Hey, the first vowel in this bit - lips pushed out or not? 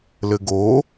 no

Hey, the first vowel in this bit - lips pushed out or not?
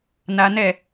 no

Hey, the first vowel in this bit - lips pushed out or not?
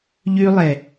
yes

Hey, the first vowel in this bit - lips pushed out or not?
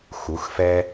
yes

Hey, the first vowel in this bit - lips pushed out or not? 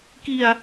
no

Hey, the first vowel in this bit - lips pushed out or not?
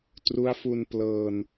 yes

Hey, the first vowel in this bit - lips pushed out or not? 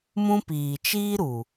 yes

